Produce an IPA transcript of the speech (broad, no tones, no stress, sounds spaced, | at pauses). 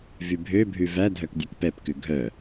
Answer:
v y bʱ ø bʱ ʉ v æ dʱ œ k dʲ ʉ k p ɛ p k ʉ ɡʱ œ